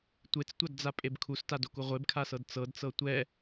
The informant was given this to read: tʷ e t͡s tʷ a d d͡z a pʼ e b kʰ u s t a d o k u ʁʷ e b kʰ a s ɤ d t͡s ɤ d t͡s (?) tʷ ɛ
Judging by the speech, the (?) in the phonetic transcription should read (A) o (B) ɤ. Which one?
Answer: B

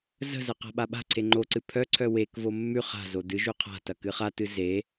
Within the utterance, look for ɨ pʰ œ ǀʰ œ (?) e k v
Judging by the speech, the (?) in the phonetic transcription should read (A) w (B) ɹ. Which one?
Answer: A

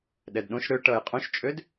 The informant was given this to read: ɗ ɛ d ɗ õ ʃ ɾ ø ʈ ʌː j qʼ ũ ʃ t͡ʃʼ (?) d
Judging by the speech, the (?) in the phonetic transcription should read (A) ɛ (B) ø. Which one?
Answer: B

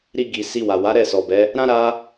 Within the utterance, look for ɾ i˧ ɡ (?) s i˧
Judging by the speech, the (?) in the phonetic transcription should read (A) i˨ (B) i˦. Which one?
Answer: A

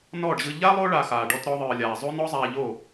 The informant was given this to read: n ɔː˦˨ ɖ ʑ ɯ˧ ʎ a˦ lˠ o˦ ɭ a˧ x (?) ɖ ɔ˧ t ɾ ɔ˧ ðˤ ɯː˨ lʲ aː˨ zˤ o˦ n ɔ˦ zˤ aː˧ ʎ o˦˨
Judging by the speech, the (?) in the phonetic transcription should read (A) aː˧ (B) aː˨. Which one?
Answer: B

